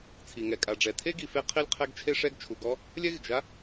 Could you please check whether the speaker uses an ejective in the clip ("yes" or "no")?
yes